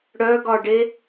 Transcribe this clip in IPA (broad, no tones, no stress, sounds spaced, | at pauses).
ɽ œ ɡ ɒ ɖ e